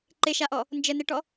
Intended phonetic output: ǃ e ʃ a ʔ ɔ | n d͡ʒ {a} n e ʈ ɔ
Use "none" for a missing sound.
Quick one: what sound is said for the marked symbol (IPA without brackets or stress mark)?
ə